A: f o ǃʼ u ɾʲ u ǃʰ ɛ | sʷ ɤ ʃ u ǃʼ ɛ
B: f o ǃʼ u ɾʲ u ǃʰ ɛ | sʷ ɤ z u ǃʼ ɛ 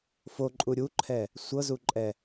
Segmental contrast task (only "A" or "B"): B